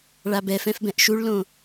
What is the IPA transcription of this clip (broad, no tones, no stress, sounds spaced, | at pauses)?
ɭ a b ɛ f ɛ̃ f b ɛ̃ ʔ ʃ u ɭ l õ